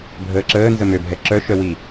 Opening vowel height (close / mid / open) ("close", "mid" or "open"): mid